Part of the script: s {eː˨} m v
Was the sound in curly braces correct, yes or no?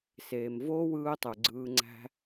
yes